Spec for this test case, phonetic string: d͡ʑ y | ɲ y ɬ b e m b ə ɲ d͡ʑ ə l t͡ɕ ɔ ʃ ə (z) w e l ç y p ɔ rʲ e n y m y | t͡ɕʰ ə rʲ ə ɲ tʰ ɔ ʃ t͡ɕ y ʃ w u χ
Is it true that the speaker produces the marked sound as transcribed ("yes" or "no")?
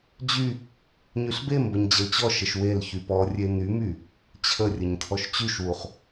no